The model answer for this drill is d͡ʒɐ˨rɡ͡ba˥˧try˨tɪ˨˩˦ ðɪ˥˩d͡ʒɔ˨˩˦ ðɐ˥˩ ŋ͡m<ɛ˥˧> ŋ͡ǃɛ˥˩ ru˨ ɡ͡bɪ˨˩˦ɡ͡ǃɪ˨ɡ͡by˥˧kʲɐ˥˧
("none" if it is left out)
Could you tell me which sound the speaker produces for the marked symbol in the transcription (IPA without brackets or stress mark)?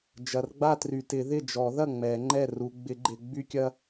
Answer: ɛ˨˩˦